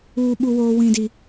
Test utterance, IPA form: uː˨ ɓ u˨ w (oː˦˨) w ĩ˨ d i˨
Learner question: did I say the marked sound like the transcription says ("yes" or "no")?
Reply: no